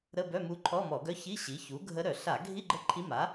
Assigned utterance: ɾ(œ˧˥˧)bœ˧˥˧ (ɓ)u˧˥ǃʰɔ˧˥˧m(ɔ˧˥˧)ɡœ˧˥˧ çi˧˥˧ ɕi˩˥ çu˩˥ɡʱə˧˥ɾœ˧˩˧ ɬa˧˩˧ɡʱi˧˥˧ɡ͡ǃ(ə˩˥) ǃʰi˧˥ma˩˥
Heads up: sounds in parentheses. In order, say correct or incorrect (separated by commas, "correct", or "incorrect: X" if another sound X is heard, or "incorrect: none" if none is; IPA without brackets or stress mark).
incorrect: ə˧˥˧, incorrect: m, incorrect: ɔ˧˩˧, incorrect: ə˧˥